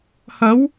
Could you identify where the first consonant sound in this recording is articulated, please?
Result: glottal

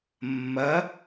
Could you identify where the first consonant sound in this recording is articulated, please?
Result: labial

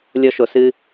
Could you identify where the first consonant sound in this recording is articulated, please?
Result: alveolar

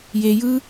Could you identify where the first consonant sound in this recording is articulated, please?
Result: palatal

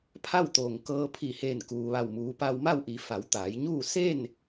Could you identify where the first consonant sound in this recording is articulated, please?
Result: labial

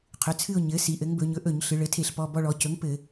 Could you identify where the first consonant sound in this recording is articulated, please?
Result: uvular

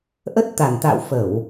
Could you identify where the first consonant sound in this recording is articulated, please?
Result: glottal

